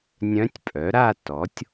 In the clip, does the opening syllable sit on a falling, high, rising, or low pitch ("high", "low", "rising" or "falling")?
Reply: rising